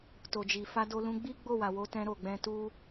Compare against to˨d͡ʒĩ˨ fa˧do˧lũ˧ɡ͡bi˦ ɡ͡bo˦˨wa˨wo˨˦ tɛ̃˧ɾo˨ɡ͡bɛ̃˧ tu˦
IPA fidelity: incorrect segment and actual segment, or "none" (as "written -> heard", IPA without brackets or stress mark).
ĩ˨ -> i˨